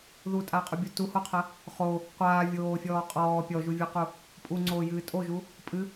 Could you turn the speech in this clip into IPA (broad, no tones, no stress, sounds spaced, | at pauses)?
ð u tʼ aː qʼ u bʲ o t u h o qʰ ɐ | χ o | qʷ aː vʲ oː fʲ ɔː qʼ ɔː pʲ ɔ ʒ u vʲ ɔ q u | pʼ u ŋ͡ǀ oː j ɨː tʼ o ʒ u | pʼ ɨ